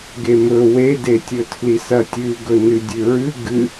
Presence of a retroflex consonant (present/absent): absent